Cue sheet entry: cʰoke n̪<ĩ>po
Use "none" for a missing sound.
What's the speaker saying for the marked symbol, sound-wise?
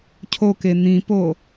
ĩ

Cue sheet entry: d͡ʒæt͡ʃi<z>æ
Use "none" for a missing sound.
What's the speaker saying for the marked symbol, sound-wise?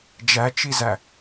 z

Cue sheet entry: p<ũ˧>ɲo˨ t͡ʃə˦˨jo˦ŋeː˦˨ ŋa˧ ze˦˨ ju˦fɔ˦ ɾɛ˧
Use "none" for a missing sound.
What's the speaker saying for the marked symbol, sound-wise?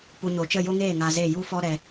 u˧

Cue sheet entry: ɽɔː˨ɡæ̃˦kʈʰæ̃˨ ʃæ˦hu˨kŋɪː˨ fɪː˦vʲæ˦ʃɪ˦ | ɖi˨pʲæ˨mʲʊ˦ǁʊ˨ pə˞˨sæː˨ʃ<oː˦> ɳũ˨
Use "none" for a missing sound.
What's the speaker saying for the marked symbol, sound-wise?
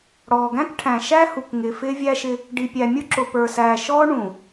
ɔː˦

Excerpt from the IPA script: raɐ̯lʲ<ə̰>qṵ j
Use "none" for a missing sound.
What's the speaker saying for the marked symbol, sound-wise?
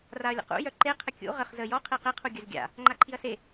ə̰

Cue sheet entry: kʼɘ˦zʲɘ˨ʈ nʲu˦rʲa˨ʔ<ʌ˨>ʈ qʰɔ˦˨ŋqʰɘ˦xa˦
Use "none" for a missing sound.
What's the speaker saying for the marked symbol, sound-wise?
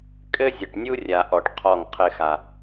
ɔ˨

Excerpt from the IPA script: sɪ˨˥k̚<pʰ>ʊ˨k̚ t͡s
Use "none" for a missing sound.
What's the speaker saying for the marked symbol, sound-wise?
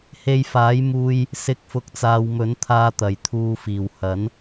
f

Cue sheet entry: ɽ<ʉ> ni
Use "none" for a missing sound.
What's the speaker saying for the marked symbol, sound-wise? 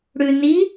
ʉ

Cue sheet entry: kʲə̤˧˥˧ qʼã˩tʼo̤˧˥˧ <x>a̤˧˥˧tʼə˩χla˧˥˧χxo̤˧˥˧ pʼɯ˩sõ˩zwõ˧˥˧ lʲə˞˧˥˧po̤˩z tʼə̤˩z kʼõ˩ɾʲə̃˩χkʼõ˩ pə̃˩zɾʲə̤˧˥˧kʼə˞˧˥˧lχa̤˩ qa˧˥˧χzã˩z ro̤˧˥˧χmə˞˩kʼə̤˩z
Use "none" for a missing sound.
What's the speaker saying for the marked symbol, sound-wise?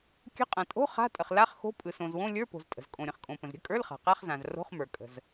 χ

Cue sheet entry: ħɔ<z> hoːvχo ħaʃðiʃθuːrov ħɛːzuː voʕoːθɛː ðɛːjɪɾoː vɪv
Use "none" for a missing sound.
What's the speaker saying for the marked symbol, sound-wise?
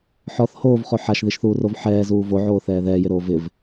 θ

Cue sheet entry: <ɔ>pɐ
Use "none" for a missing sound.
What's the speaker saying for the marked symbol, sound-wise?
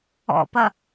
ɔ̰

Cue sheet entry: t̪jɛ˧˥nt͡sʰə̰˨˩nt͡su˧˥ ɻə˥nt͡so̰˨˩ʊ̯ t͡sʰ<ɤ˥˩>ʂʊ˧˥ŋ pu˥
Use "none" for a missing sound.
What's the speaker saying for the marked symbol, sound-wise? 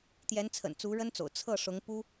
ɤ˥˩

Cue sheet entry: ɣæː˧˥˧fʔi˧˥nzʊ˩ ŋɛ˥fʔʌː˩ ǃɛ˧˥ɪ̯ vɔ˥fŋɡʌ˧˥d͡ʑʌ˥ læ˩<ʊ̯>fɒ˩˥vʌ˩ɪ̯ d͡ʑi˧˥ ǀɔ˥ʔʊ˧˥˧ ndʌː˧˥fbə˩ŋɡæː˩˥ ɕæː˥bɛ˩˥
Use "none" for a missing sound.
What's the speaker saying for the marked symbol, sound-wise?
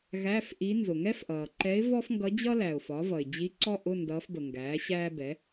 ʊ̯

